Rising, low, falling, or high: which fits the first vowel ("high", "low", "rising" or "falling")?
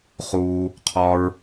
high